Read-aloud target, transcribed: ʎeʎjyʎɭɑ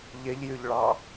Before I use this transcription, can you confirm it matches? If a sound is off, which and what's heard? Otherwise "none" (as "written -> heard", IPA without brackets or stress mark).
none